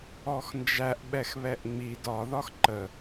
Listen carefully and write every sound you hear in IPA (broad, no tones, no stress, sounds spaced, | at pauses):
ɔ x n d͡ʒ æ ʔ ɓ ɛ x β ɛ ʔ ŋ͡m i d ɒ ð ɒ x ǃ ə